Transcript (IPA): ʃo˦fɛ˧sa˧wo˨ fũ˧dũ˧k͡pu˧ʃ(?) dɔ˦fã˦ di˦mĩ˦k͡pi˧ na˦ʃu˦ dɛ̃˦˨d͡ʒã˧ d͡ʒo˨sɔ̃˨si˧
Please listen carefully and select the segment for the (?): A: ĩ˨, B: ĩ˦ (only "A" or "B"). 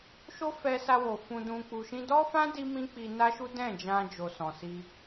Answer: B